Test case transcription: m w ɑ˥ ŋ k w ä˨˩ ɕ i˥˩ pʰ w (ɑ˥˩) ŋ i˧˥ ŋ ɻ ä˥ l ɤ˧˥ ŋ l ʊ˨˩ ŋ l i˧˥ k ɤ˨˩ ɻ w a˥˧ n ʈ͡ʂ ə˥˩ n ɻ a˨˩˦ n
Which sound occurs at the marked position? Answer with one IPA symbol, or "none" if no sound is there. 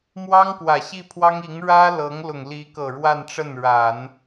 ɑ˥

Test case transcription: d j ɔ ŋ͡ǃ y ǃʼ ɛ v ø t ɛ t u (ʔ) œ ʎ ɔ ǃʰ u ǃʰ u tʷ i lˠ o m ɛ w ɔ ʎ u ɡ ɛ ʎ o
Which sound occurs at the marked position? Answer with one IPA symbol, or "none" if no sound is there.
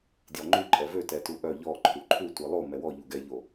ʔ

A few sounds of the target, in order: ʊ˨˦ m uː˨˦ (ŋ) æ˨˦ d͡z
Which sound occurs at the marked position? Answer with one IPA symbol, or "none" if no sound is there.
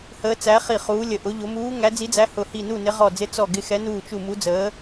ŋ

